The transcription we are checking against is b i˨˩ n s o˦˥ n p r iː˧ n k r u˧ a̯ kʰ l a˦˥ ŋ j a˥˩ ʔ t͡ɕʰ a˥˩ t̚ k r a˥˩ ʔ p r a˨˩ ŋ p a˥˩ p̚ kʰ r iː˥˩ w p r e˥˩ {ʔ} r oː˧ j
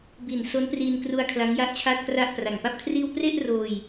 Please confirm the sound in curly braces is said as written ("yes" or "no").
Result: yes